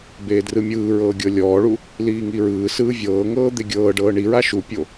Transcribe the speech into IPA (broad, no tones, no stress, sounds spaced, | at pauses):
b eː d r ɯ mʲ ɯː ɹ ɤː ɡʲ ɤ lʲ ɔː ɭ u | l iː ŋ i ɹ ɯː s ɯː vʲ ɤː ŋ ɤː d̪ e ɡʲ ɤː ɖ ɤː ɳ i ɹ a ʃ u pʲ o